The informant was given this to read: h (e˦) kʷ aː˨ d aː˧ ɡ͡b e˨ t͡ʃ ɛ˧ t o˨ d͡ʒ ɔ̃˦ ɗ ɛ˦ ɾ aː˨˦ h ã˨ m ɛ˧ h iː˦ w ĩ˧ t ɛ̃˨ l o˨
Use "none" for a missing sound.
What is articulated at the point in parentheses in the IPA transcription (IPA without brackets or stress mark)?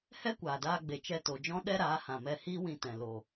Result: ɛ˦